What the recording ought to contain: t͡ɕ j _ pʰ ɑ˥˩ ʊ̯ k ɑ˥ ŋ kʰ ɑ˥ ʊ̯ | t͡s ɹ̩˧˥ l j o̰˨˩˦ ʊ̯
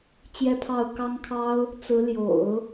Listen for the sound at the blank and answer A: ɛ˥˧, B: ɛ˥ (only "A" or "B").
A